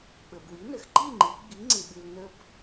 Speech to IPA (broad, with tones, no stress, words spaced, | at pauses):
ɓə˩bwi˩˥nə˩x ǃi˥˨ŋ͡ǃi˩˧ ɡ͡bi˩˥ŋ͡ǀɪ˩ɓɨ˩l nə˧b